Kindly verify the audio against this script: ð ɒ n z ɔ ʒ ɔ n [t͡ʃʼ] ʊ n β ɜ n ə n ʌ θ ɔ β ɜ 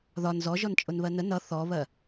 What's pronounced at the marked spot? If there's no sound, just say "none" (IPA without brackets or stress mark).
t͡ʃʼ